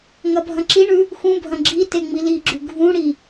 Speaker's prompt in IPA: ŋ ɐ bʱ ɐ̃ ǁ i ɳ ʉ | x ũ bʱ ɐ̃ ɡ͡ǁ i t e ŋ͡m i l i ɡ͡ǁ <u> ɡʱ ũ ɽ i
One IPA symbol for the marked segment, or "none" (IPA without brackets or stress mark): ʉ